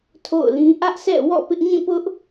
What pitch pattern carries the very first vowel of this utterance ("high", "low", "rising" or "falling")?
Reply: falling